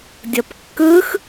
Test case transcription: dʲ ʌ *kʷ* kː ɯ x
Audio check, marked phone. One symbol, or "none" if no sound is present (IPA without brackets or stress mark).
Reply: p